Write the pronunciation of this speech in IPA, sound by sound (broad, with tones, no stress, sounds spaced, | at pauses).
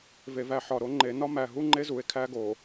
v e˨ v æ˦˨ ħ ɒ˨ ɾ o˦ ŋ͡ǃ e˨˦ n ɒ˦ m æ˨ ɦ u˦ ŋ͡ǃ e˦ z u˨ e̯ kʰ æ˦ ɡ o˨